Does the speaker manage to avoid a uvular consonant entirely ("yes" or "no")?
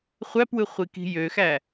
no